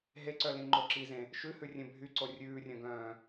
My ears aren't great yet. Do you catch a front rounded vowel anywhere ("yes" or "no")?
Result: yes